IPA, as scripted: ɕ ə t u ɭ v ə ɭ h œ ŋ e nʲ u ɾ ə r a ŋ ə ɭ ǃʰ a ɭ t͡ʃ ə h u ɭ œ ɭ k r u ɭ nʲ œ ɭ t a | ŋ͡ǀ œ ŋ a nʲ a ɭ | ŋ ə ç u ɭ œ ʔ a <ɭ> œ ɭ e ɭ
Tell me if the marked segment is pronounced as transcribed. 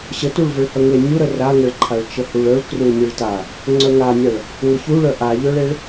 no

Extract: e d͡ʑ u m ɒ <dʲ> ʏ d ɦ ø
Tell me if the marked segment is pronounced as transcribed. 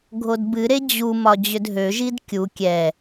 no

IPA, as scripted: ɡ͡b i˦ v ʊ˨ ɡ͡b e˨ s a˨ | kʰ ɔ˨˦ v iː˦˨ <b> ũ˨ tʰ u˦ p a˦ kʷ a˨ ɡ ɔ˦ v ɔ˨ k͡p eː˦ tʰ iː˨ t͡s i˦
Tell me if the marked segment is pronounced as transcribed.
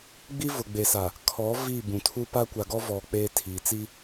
yes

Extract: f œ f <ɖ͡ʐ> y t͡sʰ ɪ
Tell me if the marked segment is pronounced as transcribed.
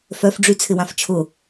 yes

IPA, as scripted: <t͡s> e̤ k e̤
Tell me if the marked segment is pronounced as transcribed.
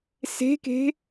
no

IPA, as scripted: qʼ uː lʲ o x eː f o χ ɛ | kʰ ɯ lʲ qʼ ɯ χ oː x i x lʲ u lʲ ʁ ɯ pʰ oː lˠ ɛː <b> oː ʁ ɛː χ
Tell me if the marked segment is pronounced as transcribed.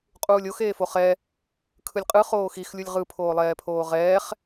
no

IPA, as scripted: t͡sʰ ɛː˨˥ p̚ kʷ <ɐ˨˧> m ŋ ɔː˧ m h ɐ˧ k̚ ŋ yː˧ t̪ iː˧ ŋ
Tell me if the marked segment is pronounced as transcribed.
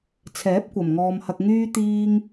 no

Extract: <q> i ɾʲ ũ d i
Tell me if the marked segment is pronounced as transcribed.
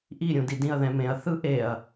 no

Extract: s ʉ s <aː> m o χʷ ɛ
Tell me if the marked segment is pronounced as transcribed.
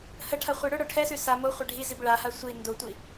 no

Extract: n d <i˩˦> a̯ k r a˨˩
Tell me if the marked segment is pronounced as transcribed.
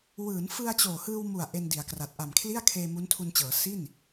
yes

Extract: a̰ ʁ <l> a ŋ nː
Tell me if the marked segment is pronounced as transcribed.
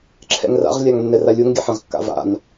no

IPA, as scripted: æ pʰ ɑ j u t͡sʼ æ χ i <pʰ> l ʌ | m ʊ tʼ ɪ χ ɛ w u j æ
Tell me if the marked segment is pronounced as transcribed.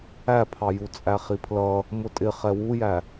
yes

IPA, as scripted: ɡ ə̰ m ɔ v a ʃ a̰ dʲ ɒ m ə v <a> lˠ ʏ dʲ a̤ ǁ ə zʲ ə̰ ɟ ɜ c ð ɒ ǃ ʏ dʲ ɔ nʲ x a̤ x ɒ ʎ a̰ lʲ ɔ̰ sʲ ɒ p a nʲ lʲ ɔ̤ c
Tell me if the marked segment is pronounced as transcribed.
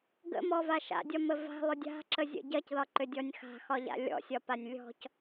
no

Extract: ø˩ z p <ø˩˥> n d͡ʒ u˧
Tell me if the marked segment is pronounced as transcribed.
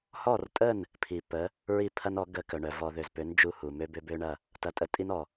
yes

